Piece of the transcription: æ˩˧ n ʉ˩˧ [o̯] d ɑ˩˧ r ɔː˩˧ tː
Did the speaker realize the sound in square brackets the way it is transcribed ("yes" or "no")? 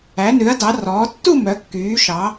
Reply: no